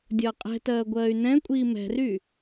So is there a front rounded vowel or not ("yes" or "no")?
yes